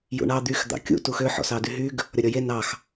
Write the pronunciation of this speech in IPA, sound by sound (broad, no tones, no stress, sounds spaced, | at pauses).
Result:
j ṵ ɳ ɑ d̪ y x d̪ ɑ̰ kʲ ṵ t u x ø ħ ɔ̰ s ɑ d y ɦ y ɡ | ɾʲ ɔ ɾʲ ɔ j e n ɑ x